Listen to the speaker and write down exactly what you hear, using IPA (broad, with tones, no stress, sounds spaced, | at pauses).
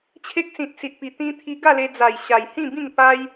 t͡ɕʰ e˦ k̚ s ĩ˨ t̚ s i˨ t̚ p i˨˩ t̪ ĩ˧ t̪ʰ i˧ ɡ a˥˧ l e˧ d͡z a˨˩ j ɕ a˨˩ j h ĩ˥˧ b ĩ˥˧ ŋ p a˦ j